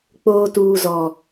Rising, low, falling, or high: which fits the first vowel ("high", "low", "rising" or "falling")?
high